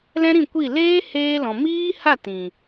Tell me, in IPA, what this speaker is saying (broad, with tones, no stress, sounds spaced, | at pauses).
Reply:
l ɛ̃˦ ɾ ĩ˦˨ kʷ i˦˨ l eː˦ h eː˧ l ɔ̃˨ m iː˦ h a˦˨ t ĩ˨